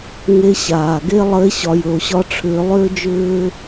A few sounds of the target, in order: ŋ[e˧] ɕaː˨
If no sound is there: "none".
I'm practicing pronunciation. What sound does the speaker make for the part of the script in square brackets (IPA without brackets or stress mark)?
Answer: e˧